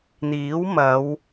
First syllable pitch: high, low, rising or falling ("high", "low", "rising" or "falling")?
rising